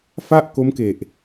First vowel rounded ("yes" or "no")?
no